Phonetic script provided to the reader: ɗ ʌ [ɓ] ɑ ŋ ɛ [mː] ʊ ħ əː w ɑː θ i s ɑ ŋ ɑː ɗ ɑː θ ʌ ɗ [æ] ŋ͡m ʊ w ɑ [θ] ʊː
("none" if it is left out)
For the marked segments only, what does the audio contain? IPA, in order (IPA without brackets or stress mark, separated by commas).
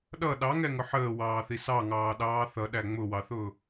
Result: ɗ, ŋ, æ, θ